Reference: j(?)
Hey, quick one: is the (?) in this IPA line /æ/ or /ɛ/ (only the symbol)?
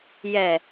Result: ɛ